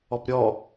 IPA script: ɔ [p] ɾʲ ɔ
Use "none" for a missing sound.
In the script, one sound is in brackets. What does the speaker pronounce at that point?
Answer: p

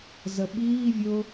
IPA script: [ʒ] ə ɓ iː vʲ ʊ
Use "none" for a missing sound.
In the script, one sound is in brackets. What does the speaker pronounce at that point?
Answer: z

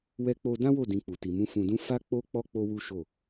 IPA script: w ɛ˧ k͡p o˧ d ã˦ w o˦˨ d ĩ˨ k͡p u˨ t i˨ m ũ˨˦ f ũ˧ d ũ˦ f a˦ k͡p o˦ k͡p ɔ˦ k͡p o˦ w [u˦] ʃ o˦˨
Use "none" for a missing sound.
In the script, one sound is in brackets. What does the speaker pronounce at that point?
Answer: u˦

